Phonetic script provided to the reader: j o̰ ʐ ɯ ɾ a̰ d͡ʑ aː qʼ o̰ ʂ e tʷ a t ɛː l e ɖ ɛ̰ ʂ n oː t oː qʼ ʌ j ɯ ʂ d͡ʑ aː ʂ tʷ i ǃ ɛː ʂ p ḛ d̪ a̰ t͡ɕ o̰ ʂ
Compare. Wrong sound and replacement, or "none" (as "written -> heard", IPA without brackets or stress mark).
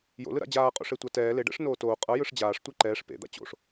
ʐ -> l